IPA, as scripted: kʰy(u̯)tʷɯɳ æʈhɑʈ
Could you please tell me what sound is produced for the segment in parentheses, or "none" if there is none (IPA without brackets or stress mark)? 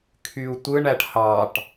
u̯